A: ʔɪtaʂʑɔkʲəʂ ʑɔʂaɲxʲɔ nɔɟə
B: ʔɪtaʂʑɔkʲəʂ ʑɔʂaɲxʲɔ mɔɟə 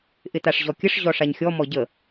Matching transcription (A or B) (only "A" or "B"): B